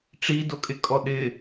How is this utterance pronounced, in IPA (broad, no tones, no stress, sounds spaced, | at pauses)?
ʈ͡ʂ i d o kʼ ɪ kʼ ɔ ɗ ɪ